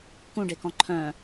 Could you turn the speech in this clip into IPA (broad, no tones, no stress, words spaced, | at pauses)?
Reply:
kũɖekɔ̃ ǃʰœ̃